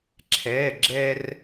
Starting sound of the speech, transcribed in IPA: ǁʰ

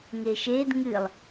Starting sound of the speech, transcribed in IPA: ŋ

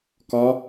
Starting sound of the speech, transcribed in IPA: k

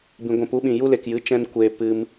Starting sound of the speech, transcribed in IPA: b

